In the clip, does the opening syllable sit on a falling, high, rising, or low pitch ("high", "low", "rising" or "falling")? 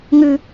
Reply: high